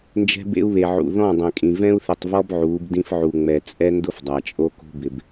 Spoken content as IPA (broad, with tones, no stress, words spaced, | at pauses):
nd͡ʒɛ̤˦bḛ˦u̯βe˨ʕṵ˨ ðɔ̃˦˨dˤɛ̃˨kʼĩ˨ vɛ̃˦u̯θɪ˨tˤvɔ˦b ʕuː˨˦bdĩ˦fʕu˨ŋ͡mɛ˨ t͡sʼɛ˦ ndʊ˦fdˤa˨t͡ʃʼo˦ko̤˦ bɪ˨b